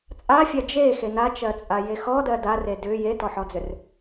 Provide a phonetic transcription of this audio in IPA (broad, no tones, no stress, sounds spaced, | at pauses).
t͡sʼ a fʲ a d͡ʒ e x e n a t͡ʃ ɜ t͡sʼ a j e x ɔ d ɜ d a r e d ʏ j e t ɔ ħ ɔ d͡z ʏ r